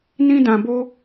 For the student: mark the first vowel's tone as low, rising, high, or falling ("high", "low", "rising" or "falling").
high